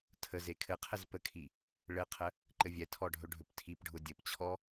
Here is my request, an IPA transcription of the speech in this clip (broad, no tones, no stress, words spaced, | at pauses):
tʰəze kʰɘqʰɛz pəkʰi | ɭɘqʰə | ǃɘvʲɛtʰɔ ɖʱɵɖʱɵptʰipɖʱʊ dʲɘpt͡ɕʰɔ